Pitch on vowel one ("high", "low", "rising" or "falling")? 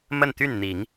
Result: falling